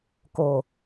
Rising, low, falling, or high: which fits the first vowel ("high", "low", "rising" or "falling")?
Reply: low